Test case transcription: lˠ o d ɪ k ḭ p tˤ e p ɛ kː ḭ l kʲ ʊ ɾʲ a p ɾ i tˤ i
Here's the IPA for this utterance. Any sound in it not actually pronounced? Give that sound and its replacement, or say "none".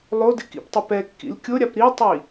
none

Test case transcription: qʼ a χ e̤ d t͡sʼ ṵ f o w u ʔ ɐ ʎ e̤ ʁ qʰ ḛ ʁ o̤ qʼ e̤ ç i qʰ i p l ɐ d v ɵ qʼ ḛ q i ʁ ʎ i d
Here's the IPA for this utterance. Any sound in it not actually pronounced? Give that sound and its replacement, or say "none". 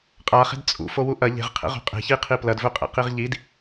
none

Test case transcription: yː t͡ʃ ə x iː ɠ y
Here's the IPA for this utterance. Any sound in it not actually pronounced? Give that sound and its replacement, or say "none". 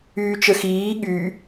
none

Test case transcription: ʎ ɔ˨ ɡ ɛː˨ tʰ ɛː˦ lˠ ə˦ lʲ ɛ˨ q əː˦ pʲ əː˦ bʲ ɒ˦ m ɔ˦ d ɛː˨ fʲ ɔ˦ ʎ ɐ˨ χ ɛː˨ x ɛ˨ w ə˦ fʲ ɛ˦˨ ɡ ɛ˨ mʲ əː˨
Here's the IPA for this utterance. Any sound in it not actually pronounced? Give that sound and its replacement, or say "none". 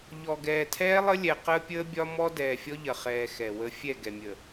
none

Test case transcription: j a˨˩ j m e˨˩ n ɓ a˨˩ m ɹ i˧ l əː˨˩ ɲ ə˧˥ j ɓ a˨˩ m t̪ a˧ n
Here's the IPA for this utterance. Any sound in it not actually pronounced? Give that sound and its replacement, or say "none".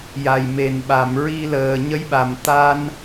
none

